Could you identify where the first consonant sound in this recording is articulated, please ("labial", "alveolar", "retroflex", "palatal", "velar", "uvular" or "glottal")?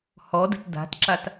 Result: glottal